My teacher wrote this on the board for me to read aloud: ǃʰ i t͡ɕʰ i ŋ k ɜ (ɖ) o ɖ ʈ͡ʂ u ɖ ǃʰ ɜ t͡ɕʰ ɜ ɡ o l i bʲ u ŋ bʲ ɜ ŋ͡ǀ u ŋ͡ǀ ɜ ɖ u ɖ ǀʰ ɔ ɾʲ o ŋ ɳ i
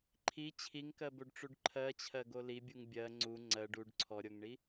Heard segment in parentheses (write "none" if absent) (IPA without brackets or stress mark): b